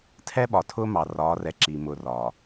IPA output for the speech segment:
tʰ ɛ˦ ɓ ɒ˨ tʰ ʊː˦ m ɑ˨ r ɒː˨˦ r ɛ˨ ǁ i˨ m ʊ˨ r ɒː˨

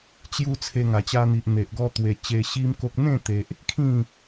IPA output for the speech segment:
t͡ɕ j u˧ t͡sʰ e˧ ŋ a˨˩ t͡ɕ a˧ n̪ i˨ ʔ n̪ e˨ ʔ ɡ ɔ˧ t̪ w e˨˩ t͡ɕ e˧ ɕ i˦ m k o˦ k̚ n̪ ẽ˥˧ t̪ e˨ ʔ | kʰ ĩ˥˧

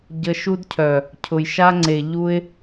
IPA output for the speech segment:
ɟ ə˧ ʃ u˦ d cʰ œ˨ | cʰ ʊ˨ j ʃ a˦ ŋ͡ǀ e˨ ʎ u˦ ɪ̯

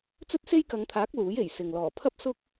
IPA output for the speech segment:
t͡s ɵ˥ t̚ s e˥ j k ɐ˨˧ ŋ t̪ʰ aː˨˥ k̚ l uː˨˥ j e˨˩ j s ɪ˨ ŋ l ɔː˨˩ pʰ ɐ˥ p̚ s ʊ˥ k̚

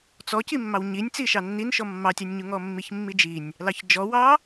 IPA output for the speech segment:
t͡s ɔ c i mː ɑ w ɲ i nʲ t͡s i ʃ ɑ nː i n ʃ ɔ mː ɑ tʲ ɑ nʲ ɲ u ŋ ɔ mː i ç mː i d͡ʒ i nʲ | l ɑ ç d͡ʒ ɔ w ɑ

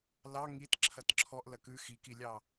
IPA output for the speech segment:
l ɑ ŋ i t ǁʰ ɐ t ǁʰ ɔ ʔ l ɐ k ʉ x i k i lʲ ɑ

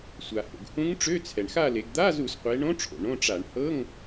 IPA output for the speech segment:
sʷ a˩ h o̰˩ ɡ h ũ˧˥ ŋ ʈ͡ʂ ø˧˥˧ t͡sʰ ɛ˩ ɳ x a˥˧ l e˩˧ ɡ d̪ a˧˥˧ z u˧˩˧ s qʷ e˩˧ ɳ õ˧˥ ʈ͡ʂʰ o̰˩ ɳ õ˧˥˧ ʈ͡ʂ a˧˩˧ ɳ h ɤ˧˥˧ ŋ

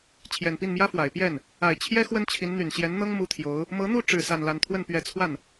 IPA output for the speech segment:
t͡ɕʰ j ɛ˨˩ n p i˥˩ n m j ä˥ f w a˨˩ ɪ̯ p j ɛ˥˩ n | a˨˩ ɪ̯ t͡ɕʰ j ɛ˥ x w ə˥ n t͡ɕʰ i˧˥ n n̪ y˨˩ n ɕ j ɛ˧˥ n n̪ ɤ˥ ŋ m u˥ t̪ʰ j o˧˥ ʊ̯ | m ɤ˧˥ n̪ u˥˧ ʈ͡ʂ ɻ̩˥˧ s a˥˧ n l a˥˧ n t̪ʰ w ə˥˩ n p ɥ ɛ˧˥ t͡sʰ w a˥˩ n

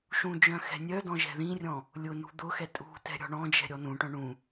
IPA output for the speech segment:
ʃ ũ d͡ʒ œ̃ x ɛ̤ nʲ œ d ɔ̃ ʒ ɛ̤ ð ĩ rʲ ɔ̃ | lʲ ʊ n ṳ d̪ ʊ x ɛ tʼ ṳ t ɛ̤ ɾʲ ɔ̤ ɳ ɔ̃ d͡ʒ ɛ̤ ɾʲ ɔ n ũ ʈ œ̃ ɳ ũ

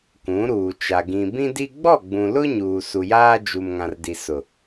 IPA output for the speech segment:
k ũ˨˦ ɾ uː˨ t͡ʃ a˨ ɡ ĩ˨ b ĩ˦ d i˦ ɡ͡b ɔ˦˨ ɡ͡b ũ˨ l ʊ˦ ɲ uː˨ s u˨ j aː˦ d͡ʒ u˨ m ŋ ã˨ r d i˨ s ʊ˨

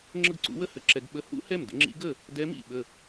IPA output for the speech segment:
ŋ͡ǁ ə˥˩ ɡ ǀ ṵ˧˥ w ə˥˩ h ə˥ ǁ ɛ˧˥ ɡ ɓ ə˧˥ h ṵ˥ h ɛ˥˩ m d ə̰˥ ŋ͡ǁ ḭ˧˥ ɡ ə˥˩ | d ɛ˧˥ m ḭ˥˩ ɓ ə˥˩

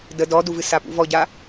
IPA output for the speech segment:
d ə d ɔ d u v ɨ s a p ṵ v ɔ ɟ a

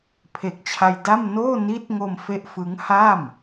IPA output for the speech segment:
pʰ e˨˩ k̚ t͡ɕʰ a˧ j d a˥˩ m n oː˥˩ n iː˦˥ t̚ ŋ o˧ m f e˥˩ ʔ f ɯ˦˥ ŋ h a˥˩ m

